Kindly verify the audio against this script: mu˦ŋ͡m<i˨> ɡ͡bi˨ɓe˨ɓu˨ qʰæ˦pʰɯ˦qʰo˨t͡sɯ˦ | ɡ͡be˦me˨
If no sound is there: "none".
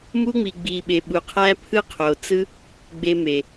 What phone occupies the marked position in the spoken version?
i˨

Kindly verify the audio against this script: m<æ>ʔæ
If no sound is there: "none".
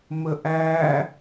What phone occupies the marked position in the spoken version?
ə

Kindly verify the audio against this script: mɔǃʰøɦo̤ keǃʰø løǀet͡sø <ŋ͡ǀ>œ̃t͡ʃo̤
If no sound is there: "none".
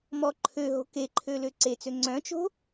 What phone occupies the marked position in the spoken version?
ŋ͡ǀ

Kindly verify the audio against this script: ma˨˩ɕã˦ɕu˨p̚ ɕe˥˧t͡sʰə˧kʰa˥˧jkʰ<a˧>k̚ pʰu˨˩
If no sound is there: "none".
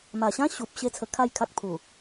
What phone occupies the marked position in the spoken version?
a˦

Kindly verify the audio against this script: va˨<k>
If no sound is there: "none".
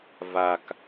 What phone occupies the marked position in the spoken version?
k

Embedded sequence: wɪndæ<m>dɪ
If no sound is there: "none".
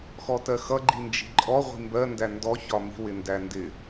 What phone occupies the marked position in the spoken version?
n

